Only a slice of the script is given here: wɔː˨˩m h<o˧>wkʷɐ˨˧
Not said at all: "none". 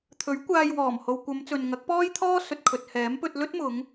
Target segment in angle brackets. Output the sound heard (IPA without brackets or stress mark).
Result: o˨